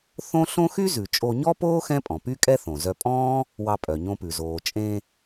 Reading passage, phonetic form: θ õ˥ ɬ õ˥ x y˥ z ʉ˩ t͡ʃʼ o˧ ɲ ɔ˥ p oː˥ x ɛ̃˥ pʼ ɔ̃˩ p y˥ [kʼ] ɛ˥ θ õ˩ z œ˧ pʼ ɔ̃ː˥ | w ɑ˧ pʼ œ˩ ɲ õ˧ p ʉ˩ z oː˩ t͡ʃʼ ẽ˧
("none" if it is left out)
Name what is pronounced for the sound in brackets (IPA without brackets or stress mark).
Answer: kʼ